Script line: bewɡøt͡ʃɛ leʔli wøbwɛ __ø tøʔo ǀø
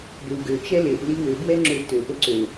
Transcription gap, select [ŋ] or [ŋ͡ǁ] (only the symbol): ŋ͡ǁ